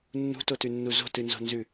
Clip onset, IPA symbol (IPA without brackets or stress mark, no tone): nː